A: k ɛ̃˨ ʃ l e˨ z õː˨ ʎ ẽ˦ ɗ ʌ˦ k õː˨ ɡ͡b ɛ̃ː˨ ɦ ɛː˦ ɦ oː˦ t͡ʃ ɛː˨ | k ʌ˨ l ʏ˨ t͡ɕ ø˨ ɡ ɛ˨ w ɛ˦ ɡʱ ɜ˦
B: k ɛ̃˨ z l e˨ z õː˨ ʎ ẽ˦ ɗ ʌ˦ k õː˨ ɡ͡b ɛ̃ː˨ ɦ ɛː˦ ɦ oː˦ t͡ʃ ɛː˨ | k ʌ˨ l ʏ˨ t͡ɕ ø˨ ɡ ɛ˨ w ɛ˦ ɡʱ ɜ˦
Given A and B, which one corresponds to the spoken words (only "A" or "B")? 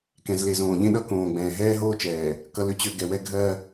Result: B